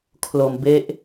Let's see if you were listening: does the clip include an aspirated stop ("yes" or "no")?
yes